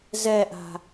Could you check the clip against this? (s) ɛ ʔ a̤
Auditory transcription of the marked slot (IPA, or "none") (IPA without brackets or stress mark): z